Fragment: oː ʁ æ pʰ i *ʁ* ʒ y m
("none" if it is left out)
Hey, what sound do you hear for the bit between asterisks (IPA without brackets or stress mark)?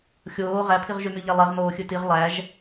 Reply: ʁ